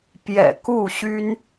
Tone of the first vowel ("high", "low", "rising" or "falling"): low